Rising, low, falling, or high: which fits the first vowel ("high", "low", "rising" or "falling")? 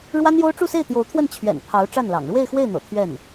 high